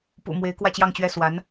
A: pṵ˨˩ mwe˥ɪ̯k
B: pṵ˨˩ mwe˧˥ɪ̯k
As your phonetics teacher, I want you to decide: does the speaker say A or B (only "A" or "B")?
B